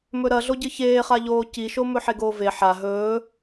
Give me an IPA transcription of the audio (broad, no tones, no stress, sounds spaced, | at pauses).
m ɵ ɾ ɐ ɮ o ɟ ɨ ç eː χ a ʎ oː c i ʃ o m ɵ ħ e ɡ oː v e ħ a ɦ ɵː